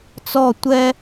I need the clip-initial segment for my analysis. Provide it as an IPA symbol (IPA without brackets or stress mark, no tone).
t͡s